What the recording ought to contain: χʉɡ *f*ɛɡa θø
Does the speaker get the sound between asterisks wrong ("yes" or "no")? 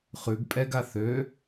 yes